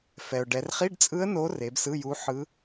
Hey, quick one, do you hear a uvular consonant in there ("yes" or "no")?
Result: yes